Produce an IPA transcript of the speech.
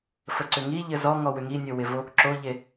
f ə ǀ ʏ ŋ i ʎ ɘ z ɔ ŋ ɔ w ʏ ŋ i nʲ o w ɪ v o | ǁ o ʎ e

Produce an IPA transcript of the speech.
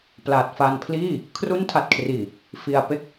p l a˨˩ t̚ f a˧ n pʰ l iː˥˩ | kʰ r u˦˥ n tʰ a˨˩ t̚ kʰ r iː˨˩ | f i˧ a̯ p e˥˩ k̚

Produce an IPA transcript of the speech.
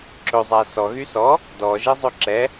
ǁ ɵ zˤ æ s ɔ ɣ y s ɔ | d ɔ ʒ i zˤ ø ǁ ɛ

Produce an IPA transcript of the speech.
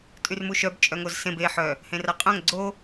tʼ y r m u ʃ œ b t͡ʃʼ œ ŋ o z s ẽ b e ħ œ | h ẽ r a qʼ œ̃ ŋ ɡ͡ǀ o

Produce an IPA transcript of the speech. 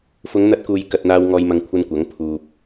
f ʊ˨˧ ŋ n̪ ɐ˧ t̚ k uː˨ j k ɐ˧ t̚ n̪ aː˧ w ŋ ɔː˨ j m ɐ˨ ŋ kʷʰ ɐ˧ n kʷ ɐ˨˥ ŋ pʰ uː˨ p̚

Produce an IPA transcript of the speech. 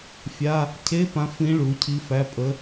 fʲ a˧˥˧ | cʰ e˧˥˧ p ã˧˥ f ĩ˧˥ ɭ u˩˥ cʰ i˧˥ f æ˧˥˧ pʼ ə˧˥

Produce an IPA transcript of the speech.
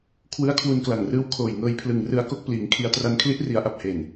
kʰ w ɯ˦˥ a̯ kʰ w u˧ n k l a˨˩ ŋ r ɯː˦˥ w kʰ oː˨˩ j ŋ ɤː˧ j pʰ l ɯ˨˩ ŋ r ɯ˧ a̯ k o˥˩ k̚ p l iː˩˦ ŋ kʰ i˧ a̯ t r a˧ n kʰ l i˦˥ ʔ r i˩˦ a̯ ʔ a˨˩ p̚ h e˨˩ n

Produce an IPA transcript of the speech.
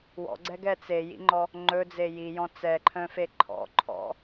w ɔ̰ ɡ͡ǀ ɛ ɡ ɛ t͡s e j ḭ ŋ͡ǃ ɔ | ŋ͡ǃ ɵ d͡z e j i j ɔ̃ t͡s ɛ ǃʰ œ̃ f e ǃʰ ɔ̰ ǃʰ ɔ̰

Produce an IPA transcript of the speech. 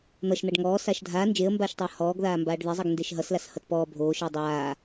n̪ ʌ ʃ n̪ a ɖ ŋ ɔː s a ʃ dʱ a n d͡ʒ e ə̯ m b aː ʃ tˤ ʌː h ɔː ɡ ð aː m b aː ɖ ð e zˤ ʌ ɡ n d e ʃ ɦ ʌ s l a s h ʌ t p ɔː bʱ oː ʃ ʌː dˤ aː

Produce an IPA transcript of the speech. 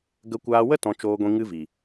ɡ ə˧ kʷ aː˧ w ə˦ t ɔ̃˧ t͡ʃ oː˧ ɡʷ ĩ˧ ŋ ɨ˦ v i˨

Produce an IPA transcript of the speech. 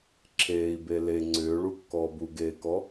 ǁʰ eː i̯ b e l e ŋ͡ǀ ʏː ɭ u kː ɔː b u ɡ eː k ɔ

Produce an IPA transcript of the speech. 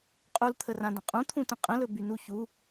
qʼ u l t̪ʰ ə r ã d ə̃ qʼ ũ t̪ʰ ũ t ə̃ qʼ ə̃ l ɵ b y n u ç u

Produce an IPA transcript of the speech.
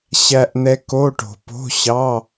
ɕ æ˨ ʔ n̪ ɛ˨ k o˧˥˧ ʈ o̤˨ p o̤˧˥˧ ɕ ɑ˧˥˧

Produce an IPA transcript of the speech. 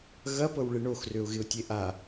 ɣ ɐ p ɤ w ɭ ɪ ɳ o x r ø ʊ̯ ɣ ɪ ʊ̯ tʲ e ʔ a

